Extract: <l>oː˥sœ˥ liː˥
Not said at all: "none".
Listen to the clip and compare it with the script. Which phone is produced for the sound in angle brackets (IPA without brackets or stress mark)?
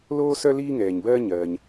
l